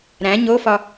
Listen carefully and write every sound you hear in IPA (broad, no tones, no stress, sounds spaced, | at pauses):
ɾ æ̃ ɲ o f ɒ